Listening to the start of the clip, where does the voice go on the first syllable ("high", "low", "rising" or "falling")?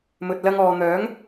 low